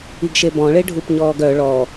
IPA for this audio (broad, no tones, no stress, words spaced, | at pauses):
iɡʃebɔ̃ ɭeɖʱupɲɔːɡœ ɭɔ